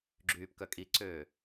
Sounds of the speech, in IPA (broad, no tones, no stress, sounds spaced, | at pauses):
ɡ͡ǁ yː p k œ kʼ i ǀ øː